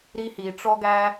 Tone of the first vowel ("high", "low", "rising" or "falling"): high